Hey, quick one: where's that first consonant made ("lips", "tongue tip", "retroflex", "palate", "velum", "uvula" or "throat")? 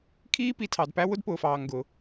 velum